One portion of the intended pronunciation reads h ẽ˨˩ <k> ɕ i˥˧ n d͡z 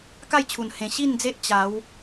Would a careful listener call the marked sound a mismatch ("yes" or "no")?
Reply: yes